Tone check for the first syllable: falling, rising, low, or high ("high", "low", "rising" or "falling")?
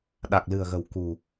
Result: low